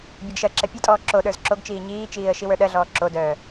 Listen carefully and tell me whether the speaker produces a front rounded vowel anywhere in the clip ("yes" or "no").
yes